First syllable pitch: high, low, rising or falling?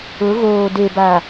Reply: rising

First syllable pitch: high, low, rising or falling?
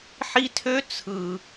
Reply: high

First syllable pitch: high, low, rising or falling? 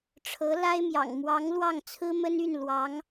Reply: rising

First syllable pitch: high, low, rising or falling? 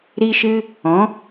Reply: high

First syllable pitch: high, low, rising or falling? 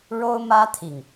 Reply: high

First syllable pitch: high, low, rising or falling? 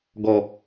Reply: low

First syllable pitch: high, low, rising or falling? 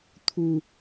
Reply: low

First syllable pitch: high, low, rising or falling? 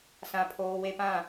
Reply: high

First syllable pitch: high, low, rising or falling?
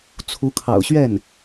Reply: rising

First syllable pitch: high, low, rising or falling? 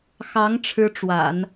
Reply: rising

